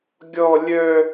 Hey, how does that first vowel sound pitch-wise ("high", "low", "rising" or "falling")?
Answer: high